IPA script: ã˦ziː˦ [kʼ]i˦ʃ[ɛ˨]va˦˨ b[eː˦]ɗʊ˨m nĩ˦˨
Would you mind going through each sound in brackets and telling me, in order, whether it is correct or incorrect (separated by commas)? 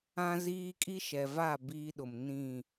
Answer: correct, correct, incorrect